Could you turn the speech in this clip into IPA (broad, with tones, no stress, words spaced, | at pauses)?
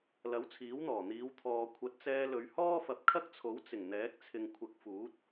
lɐ˨˥w t͡sʰiː˨˥wn̪ɔː˨˩n̪iː˨˧w t̪ʰɔː˨ kʷʰɐ˨˥t̚t͡sɛː˧lɵ˨˧ɥ hɔː˥fɐ˨˥p̚kʰɐ˥k̚t͡sʰo˨˥w t͡sɪ˨˩ŋn̪ɛː˨˥k̚ t͡sʰɪ˨ŋkʷʰɐ˨˥k̚fuː˨˥t̚